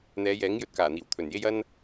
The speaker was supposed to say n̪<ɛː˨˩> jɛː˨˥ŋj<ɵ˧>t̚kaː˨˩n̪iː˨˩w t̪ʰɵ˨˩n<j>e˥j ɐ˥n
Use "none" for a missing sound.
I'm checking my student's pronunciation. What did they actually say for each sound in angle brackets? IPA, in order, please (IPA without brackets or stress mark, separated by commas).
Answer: ɛː˨˧, ɵ˧, j